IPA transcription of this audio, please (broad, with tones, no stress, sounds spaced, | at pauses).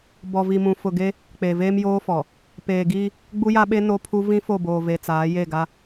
b ɔ˨ v i˨ m ũ˨ f ʊ˨ ɡ e˦ | k͡p e˨ v eː˦ m j oː˦ f ɔ˨ | p eː˨ ɡ iː˦ | ɡ͡b u˦ j a˦ ɓ e˦ n o˦ pʰ u˦ v ĩ˦ f o˦˨ b oː˨ v e˨ t͡s aː˨˦ j e˦˨ ɡ a˦